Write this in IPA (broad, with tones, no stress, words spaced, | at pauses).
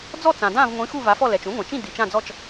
d͡zɔ˥˩ t͡sã˩dã˥˩vŋʷĩ˩˥ xu˥˩va˩˥fɔ˥˩ lɛ˩t͡ʃũ˩˥ŋʷã˩t͡ʃĩ˥˩ di˩t͡ʃã˥˩d͡zɔ˥˩t͡ʃ